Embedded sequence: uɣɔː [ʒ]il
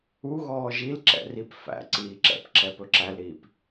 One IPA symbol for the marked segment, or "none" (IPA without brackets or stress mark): ʒ